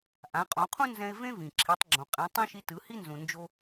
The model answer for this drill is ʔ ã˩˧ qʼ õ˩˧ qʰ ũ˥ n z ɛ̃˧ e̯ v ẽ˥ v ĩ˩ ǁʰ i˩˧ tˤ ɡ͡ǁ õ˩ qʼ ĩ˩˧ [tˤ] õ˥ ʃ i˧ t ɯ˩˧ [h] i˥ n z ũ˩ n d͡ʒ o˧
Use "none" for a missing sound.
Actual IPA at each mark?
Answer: tˤ, h

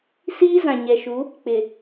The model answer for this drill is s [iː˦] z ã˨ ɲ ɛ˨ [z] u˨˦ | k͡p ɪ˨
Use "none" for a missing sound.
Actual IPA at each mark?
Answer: iː˦, ʃ

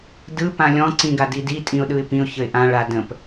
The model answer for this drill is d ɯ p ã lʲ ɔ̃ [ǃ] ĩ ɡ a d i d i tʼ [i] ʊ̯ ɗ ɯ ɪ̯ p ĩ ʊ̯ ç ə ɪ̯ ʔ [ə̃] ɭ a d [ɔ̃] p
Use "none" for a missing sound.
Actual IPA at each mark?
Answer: ǀ, ĩ, ã, ə̃

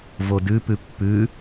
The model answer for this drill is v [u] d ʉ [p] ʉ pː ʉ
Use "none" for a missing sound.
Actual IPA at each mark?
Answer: o, p

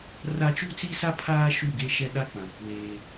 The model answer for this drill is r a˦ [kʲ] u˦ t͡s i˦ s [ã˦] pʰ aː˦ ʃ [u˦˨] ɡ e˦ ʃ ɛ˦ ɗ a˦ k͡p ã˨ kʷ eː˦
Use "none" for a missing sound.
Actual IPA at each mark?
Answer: t͡ʃ, a˦, u˦˨

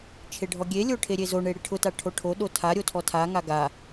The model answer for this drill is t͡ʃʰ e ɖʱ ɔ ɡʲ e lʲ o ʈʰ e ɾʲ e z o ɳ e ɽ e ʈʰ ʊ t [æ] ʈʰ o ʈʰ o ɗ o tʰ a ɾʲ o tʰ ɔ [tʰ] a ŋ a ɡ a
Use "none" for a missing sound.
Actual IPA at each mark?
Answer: a, tʰ

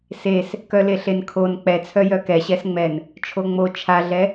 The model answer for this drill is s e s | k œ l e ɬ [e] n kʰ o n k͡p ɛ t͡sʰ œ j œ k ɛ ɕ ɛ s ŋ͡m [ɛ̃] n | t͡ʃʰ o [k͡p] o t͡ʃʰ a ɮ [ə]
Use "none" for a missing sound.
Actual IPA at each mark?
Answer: e, ɛ, ŋ͡m, ɛ

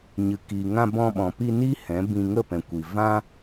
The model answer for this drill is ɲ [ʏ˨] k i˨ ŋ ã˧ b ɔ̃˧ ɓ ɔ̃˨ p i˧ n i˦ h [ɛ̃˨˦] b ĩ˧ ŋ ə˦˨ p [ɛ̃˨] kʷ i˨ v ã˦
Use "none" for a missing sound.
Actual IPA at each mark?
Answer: ɨ˨, ɛ̃˨˦, ɛ̃˨

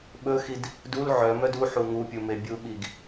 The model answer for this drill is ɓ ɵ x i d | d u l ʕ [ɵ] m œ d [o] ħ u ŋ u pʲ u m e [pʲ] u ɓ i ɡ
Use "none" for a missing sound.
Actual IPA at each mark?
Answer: œ, u, bʲ

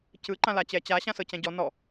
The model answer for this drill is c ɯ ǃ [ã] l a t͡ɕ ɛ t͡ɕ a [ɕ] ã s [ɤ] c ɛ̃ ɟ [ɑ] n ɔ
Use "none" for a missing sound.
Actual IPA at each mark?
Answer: ã, ɕ, ɤ, ɔ

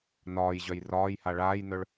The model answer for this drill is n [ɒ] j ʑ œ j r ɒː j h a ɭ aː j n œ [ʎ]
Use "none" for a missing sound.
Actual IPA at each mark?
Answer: ɒː, ɭ

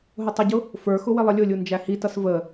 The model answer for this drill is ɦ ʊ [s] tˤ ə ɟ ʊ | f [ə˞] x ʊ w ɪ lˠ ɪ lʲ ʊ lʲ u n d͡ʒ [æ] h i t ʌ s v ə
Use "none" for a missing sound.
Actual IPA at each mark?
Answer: none, ə˞, æ

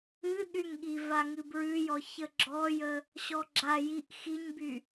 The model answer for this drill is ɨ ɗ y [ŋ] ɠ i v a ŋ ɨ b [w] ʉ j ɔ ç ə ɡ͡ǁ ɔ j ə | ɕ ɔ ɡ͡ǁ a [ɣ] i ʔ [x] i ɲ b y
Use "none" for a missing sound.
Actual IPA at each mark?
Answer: ŋ, ɹ, j, x

